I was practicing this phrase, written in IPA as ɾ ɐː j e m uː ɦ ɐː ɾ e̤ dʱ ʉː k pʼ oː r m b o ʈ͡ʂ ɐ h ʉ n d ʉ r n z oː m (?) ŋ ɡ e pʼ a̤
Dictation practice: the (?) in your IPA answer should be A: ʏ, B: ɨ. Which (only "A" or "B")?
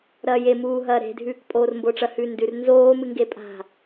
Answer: B